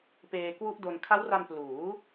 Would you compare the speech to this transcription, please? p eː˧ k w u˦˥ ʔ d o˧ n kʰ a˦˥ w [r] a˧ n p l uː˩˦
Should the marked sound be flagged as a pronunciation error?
no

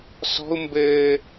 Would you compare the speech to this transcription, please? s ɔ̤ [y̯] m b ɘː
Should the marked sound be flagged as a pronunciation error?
yes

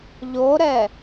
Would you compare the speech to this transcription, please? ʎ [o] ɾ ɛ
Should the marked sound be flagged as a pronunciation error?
no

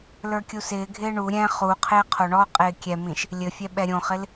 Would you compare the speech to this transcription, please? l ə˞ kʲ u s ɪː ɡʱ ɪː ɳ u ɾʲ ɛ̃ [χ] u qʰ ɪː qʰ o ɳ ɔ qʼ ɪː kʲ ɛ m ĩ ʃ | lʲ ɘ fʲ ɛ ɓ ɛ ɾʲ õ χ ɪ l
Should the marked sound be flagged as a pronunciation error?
no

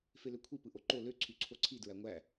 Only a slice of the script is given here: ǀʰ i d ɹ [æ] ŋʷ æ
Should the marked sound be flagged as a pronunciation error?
no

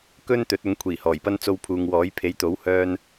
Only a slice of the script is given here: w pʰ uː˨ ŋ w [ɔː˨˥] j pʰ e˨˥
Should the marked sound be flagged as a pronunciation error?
no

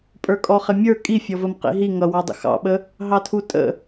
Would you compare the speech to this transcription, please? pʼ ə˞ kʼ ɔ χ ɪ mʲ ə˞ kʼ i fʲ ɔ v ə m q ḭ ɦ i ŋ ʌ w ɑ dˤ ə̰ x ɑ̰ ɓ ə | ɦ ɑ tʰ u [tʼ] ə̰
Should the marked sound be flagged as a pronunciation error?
no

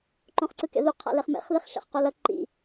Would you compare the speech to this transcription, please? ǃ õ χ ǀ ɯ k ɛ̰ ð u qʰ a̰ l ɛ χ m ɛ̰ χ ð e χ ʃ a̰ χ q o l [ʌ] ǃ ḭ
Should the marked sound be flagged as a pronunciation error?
no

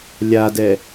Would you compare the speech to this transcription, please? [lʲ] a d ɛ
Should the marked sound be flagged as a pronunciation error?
no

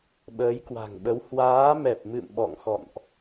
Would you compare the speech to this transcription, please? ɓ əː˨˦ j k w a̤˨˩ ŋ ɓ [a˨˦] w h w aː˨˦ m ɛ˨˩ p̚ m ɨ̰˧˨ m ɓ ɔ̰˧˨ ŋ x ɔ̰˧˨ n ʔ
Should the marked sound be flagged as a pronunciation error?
yes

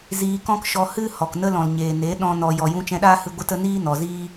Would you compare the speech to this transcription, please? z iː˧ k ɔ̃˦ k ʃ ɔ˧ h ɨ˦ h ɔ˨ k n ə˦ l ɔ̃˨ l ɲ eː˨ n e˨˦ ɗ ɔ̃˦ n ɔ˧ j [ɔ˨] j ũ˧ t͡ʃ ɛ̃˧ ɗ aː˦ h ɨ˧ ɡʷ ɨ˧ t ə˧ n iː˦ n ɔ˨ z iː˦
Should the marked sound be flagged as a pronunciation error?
no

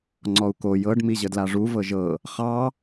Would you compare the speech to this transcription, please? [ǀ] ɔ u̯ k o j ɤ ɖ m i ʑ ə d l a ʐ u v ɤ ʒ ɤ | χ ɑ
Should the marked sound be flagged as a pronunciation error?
yes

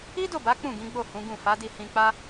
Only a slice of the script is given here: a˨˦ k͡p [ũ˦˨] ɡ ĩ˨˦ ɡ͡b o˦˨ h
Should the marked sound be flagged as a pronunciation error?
no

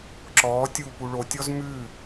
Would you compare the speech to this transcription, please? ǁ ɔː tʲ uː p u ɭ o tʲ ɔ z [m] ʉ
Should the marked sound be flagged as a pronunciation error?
no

